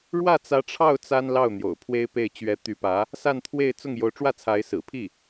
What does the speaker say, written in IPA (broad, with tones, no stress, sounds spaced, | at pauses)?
ɻ w ä˥˩ t͡s ä˧˥ ʈ͡ʂʰ ɑ˥˩ ʊ̯ t͡s a˥ n l ɑ˥˩ ʊ̯ n̪ j o̰˨˩ ʊ̯ pʰ w e˥ ɪ̯ p e˥˩ ɪ̯ t͡ɕ ɥ ɛ˧˥ t̪ y˧˥ p ä˧˥ | s a˥˧ n t̪ʰ w e˥˧ ɪ̯ t͡s ʊ˥˩ ŋ j o˧˥ ʊ̯ ʈ͡ʂ w ä˥˩ t͡sʰ a˧˥ ɪ̯ s ɹ̩˨˩ pʰ i˥˩